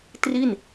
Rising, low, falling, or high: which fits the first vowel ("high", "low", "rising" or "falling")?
falling